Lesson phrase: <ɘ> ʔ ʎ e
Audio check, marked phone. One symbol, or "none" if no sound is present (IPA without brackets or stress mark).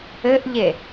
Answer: ɘ